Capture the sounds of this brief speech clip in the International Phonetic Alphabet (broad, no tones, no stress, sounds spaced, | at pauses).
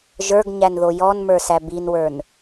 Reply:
ʒ ə˞ ɡ ɲ æ n ð o j ɔ n m ə˞ s æ b i n w ə˞ n